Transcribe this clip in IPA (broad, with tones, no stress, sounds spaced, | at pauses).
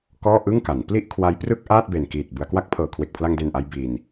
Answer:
k ɔː˥˩ ʔ ɯ˥˩ ŋ k a˩˦ n p l i˥˩ ʔ kʰ w a˦˥ j p r ɯ˥˩ k̚ ʔ aː˥˩ t̚ b e˨˩ n k iː˨˩ t̚ b ɯ˩˦ a̯ k w a˦˥ k̚ pʰ ɤː˨˩ kʰ w e˨˩ k̚ pʰ l a˧ ŋ d e˨˩ n ʔ a˧ j b i˧ n